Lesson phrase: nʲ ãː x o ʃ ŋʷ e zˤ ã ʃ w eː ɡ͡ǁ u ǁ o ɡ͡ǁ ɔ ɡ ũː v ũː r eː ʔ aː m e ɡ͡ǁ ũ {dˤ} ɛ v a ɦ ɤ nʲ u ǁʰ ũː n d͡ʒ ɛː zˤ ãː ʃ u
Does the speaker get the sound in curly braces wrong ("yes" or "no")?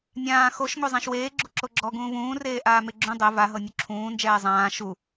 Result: no